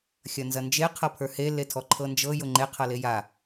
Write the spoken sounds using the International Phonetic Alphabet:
xʲɐnzɐnd͡ʒe qʰɤpʰə˞he letʰɔǃʰɤnd͡ʒɤ jʊŋ͡ǃe qʰɤleja

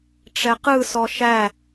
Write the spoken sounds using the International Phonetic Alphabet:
ʈ͡ʂɛqɯsɔ ʃæ

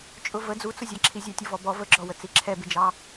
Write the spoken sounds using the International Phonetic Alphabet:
t͡ʃʼʊvə d͡zut͡sʊzʲɑǁʰi zʲɑtʲʊvɔbɔ vəɡ͡ǁɔwə t͡siǁʰɛbɪd͡ʒɑ

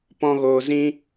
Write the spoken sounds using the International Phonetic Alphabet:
pɔ̃˦ɣoː˧ zĩ˦

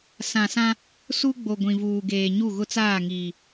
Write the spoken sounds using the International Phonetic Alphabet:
sã˨sã˦ | su˦ɡ͡bo˨ ɡʷĩ˨vuː˨ɡeː˨ ɲu˦˨ɣʊ˦t͡saː˦˨ ŋiː˨

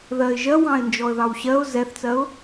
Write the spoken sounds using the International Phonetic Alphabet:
ðɜɪ̯ ʒɜ wɑ̃ɪ̯ nd͡ʒɔə̯ðɑwɕɜʊ̯ zɛθt͡sɜʊ̯

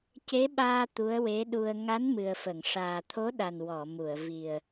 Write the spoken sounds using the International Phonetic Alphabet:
ce˧˥ɓaː˧ t̪u˧˥ə̯we˧˥ɗu˧ə̯ ŋa˧˥n mɨ˨˩ə̯fə˨˩˨ŋ ʂaː˨˩t̪ʰo˧˥ɗa˨˩n wɔ˨˩˨mu˨˩˨ə̯vi˨˩ə̯

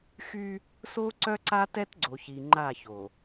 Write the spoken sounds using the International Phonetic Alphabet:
xy˦ | so˦ǀœ˦ǀa˦tɛ˦t ɡ͡ǀo˨çi˨ŋ͡ǃa˦˨ço˨

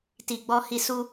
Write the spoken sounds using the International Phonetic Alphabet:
ti˨ɡ͡bɔ˧hi˧ su˧

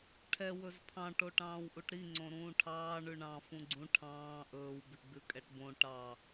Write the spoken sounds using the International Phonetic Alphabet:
ʈʰɛ wɵzpʰɑ̃ ʈoʈɑ̃ːwʔuʈɾi ŋ͡ǀõɾũːʈʰɑː ɳʉɳɑ̃ fũɡ͡ǀũ ʈʰɑ̃ː ʔɵːw biɡ͡bʉkʼɛʈbõ ʈɑ

